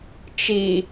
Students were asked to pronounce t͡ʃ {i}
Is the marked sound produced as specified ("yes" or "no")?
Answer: yes